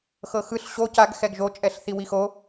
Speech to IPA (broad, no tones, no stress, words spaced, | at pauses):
xɤxɯɬ ɕo caɡ xɛɡʒo t͡ʃʼɛɬθiwixo